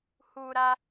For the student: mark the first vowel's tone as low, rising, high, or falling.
high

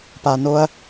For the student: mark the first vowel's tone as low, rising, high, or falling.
low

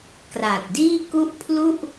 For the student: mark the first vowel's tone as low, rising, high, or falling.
low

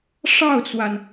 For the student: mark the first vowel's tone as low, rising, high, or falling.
falling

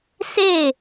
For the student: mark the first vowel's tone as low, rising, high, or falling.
falling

